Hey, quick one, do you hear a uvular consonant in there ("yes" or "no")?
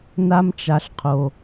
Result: yes